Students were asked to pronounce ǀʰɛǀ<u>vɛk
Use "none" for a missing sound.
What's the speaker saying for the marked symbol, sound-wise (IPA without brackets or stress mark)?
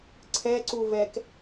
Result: u